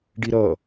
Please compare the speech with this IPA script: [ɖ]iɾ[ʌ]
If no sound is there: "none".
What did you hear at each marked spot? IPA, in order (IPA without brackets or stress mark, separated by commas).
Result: ɖ, ʌ